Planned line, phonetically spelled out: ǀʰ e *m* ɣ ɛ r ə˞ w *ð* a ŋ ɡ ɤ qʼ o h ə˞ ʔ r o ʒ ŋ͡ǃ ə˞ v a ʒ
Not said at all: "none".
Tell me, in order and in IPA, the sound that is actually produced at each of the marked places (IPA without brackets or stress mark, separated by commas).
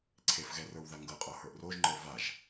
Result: f, ð